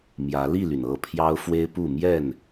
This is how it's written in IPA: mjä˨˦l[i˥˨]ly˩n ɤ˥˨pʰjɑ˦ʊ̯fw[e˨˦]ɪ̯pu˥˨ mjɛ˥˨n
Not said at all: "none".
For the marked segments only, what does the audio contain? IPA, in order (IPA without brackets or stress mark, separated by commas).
i˥˨, e˦